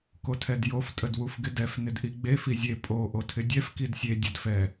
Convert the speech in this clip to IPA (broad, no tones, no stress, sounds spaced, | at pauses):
k o tʰ ɛ d j o f tʼ ə d w u f ɡ ɪ d ɛ f n ɪ d ʔ i ɡ͡b e f i zʲ e pʼ o ʔ o tʰ ɪ dʲ ɛ f k i d sʲ e dʲ ə d f ɛ